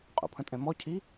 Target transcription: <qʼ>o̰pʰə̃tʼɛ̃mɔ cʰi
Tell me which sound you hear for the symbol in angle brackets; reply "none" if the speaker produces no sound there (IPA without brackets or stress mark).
qʼ